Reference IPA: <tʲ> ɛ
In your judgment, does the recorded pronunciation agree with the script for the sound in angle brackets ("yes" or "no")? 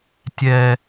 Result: yes